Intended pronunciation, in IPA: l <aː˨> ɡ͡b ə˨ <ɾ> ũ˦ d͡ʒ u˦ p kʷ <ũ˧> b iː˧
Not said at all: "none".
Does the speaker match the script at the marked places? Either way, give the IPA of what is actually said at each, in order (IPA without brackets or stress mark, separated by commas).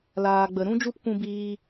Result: aː˨, ɾ, ũ˧